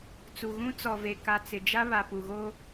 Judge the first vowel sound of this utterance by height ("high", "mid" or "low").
high